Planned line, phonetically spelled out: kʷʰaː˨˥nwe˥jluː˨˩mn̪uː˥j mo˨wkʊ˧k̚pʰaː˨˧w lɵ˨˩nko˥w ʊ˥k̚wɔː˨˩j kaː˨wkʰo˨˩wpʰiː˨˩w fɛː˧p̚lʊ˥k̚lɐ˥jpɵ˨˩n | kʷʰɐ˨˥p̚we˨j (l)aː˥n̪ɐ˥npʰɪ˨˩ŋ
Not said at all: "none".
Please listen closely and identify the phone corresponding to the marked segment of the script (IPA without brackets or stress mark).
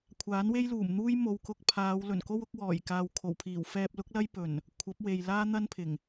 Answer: l